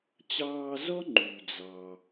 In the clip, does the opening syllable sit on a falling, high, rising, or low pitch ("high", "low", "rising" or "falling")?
high